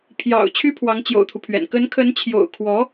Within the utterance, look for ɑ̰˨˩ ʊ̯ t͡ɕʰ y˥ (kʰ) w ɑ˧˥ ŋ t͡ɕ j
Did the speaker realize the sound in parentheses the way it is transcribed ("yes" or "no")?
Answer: no